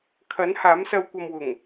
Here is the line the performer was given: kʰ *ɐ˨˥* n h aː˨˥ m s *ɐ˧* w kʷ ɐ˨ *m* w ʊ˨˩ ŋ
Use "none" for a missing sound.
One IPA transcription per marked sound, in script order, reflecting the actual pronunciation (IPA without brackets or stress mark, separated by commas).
ɐ˨˥, ɐ˧, m